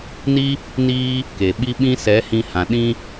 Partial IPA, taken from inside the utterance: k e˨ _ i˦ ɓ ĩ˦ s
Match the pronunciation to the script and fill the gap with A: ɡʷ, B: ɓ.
B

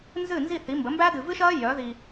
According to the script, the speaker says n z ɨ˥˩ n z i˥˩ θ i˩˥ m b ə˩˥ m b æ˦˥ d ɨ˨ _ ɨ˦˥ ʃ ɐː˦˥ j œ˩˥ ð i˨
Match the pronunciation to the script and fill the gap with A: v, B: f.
A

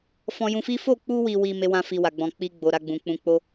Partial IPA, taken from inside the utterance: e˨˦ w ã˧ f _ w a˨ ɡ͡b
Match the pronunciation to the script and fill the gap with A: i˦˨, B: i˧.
B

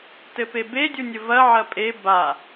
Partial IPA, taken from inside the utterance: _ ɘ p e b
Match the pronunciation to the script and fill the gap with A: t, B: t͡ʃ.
A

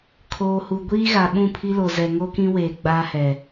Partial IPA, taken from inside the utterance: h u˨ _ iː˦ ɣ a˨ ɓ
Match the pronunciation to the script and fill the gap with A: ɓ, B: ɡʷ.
B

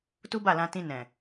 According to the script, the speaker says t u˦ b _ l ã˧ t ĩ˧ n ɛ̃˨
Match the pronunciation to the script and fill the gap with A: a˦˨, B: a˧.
A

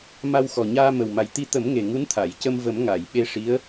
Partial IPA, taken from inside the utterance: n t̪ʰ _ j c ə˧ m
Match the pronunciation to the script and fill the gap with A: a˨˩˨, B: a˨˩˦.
A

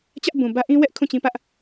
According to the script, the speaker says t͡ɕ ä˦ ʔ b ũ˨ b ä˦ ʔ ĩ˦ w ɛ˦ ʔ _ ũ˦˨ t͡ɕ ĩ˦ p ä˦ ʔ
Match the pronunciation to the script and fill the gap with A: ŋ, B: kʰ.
B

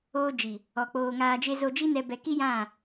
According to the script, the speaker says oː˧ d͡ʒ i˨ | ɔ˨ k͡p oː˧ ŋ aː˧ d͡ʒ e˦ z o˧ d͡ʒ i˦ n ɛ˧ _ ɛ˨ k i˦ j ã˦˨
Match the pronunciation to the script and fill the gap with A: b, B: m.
A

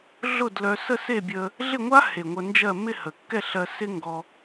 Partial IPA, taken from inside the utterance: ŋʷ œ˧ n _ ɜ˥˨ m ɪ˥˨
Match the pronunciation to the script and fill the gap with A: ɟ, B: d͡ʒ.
B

